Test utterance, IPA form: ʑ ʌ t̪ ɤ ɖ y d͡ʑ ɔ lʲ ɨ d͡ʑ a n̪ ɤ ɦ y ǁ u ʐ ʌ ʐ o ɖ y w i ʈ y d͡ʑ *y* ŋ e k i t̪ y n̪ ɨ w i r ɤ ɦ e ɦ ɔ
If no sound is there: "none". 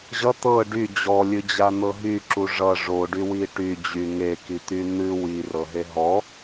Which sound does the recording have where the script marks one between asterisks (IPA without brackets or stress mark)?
y